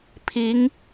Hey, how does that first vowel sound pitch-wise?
rising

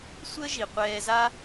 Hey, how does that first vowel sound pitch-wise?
high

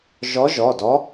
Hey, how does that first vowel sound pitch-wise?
rising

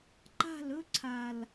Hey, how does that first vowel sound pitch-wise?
falling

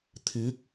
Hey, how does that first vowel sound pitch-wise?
rising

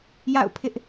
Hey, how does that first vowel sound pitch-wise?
falling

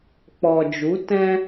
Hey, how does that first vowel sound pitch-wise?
low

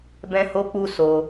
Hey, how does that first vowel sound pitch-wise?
high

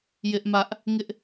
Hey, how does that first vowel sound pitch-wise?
high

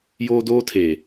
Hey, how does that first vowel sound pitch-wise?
high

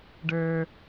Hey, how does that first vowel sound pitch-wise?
low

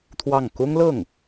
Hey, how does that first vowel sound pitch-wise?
falling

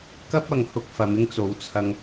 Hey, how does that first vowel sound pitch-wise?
high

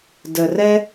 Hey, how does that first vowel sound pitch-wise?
low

